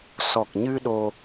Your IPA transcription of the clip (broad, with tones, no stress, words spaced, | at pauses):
sɔ˨˩k̚ɲɨ˧ ɗo˧